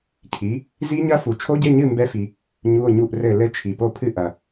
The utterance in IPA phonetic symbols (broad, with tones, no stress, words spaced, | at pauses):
cʰi˨˥ | zi˦˥ɲɐ˦˥fu˨ t͡ʃʰo˦˥ɟe˧˥˧ɲɨ˥˨ mbɛ˦˥fi˨ | ɲu˧˥˧o̯ɲu˥˨ʔrɘ˥˨ lɘ˦˥ t͡ʃʰi˨po˥˨pʰɨ˥˨ʔɐ˨